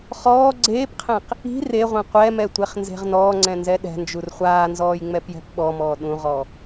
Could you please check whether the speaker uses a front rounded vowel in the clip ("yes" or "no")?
no